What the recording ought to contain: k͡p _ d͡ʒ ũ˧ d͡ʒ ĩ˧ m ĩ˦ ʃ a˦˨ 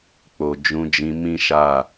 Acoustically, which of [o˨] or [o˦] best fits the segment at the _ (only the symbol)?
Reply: o˨